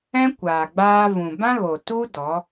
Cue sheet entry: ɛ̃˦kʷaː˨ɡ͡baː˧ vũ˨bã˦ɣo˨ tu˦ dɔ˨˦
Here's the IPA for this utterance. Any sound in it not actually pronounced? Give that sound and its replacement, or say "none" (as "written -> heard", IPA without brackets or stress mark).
none